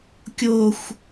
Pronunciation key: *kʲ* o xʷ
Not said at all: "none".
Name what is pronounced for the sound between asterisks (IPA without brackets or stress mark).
kʲ